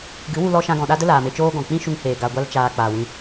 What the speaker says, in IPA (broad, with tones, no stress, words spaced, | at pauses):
ɡɨ˨˦wu˧lɔ˧ ʃã˧ɡɔ̃˨ɗa˦ də˦ laː˨me˧t͡ʃoː˦ɡɔ̃˨ k͡pĩ˦ʃu˧ŋheː˨ ɡa˨ɡʷa˧lt͡ʃaː˨ k͡paː˨wĩ˧